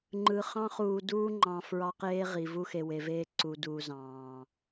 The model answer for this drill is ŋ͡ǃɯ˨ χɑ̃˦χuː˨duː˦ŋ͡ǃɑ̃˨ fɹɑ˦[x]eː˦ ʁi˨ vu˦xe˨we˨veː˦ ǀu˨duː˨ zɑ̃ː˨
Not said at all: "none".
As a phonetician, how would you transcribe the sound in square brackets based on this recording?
q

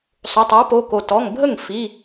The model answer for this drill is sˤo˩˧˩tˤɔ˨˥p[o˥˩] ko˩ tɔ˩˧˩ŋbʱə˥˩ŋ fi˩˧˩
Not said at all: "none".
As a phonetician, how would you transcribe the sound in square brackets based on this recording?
o˩˧˩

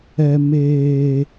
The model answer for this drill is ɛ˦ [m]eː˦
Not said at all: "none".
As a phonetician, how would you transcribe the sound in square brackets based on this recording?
m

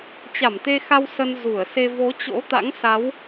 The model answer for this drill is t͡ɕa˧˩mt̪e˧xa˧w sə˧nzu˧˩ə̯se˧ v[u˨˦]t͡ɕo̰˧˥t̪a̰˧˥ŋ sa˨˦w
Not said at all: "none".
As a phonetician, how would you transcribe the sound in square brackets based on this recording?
o˨˦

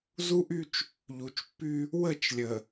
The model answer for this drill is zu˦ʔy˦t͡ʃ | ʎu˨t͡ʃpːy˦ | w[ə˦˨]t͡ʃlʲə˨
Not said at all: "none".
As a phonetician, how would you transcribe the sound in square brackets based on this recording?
ə˦˨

